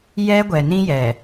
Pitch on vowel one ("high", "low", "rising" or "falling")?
high